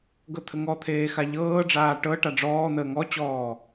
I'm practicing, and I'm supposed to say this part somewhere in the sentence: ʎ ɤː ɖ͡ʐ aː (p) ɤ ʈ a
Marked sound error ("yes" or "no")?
yes